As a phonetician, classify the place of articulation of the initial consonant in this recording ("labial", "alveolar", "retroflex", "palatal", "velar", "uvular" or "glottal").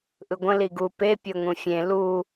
glottal